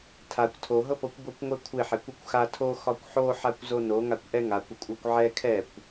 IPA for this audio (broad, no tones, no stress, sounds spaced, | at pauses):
tʰ a kʷ tʰ o ɦ ɤ p ɤ kʷ b ɤ kʷ ŋʷ ɛ kʷʰ ɪ ħ ɛ kʷ o kʷ x a tʰ o x ɒ kʷ ħ o ħ a kʷ z o n o ŋ a kʷ ʔ ɛ ŋ a kʷ ɪ kʷʼ ɤ kʷ ʕ ɛ kʰ ɛ kʷ